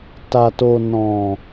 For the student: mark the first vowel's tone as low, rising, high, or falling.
low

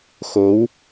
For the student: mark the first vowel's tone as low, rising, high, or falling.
rising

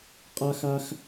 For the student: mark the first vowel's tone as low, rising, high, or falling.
high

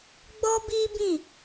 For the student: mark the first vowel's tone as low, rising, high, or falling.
high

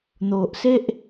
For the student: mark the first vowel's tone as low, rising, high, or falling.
low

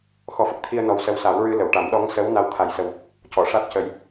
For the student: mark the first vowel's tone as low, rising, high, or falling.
rising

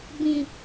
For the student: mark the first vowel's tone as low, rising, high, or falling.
low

